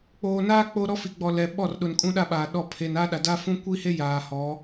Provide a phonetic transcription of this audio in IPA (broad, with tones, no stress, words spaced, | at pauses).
k͡poː˨naː˦ k͡po˦ ɾɔ˦fi˨ɡ͡bɔ˨ lɛ˨ ɓɔ˦˨rɗʊ˨n kʼũ˦ɗa˦ɓa˨ɗɔ˦˨ pʰe˨na˦ɗa˨ da˦fũ˦ kʷi˦he˦ jaː˨hɔ˨˦